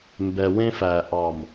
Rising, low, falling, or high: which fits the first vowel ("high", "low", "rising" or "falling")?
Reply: low